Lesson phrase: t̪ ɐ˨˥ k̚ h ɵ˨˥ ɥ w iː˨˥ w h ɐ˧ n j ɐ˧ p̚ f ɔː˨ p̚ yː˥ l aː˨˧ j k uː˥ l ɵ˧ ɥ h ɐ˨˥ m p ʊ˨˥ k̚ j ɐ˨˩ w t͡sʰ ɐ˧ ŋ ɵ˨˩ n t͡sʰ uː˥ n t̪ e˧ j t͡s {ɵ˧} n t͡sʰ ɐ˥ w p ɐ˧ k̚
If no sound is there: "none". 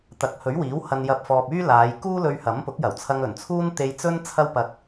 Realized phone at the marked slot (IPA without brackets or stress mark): ɵ˥